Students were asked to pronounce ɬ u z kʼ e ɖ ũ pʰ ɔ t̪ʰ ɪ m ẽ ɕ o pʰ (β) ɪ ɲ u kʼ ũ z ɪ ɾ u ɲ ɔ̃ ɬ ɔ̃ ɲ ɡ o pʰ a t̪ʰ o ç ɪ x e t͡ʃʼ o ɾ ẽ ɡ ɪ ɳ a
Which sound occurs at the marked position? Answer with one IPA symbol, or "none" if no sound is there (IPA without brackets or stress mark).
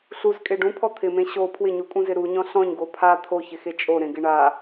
w